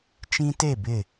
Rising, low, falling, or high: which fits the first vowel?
high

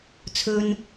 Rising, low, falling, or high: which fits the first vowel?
high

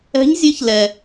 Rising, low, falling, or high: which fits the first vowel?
rising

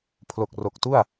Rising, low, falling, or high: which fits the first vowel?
low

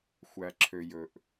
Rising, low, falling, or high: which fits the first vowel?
low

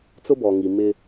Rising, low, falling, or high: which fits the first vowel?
high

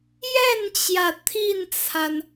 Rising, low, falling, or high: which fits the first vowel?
falling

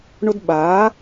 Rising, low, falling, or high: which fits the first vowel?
high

